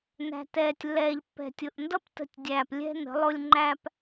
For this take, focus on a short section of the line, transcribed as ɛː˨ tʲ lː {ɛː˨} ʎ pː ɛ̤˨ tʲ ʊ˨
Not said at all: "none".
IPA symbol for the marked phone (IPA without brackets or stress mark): ɛː˨